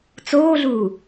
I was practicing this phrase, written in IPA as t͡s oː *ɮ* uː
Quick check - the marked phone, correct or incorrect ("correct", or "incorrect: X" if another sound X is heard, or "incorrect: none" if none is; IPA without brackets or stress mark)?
correct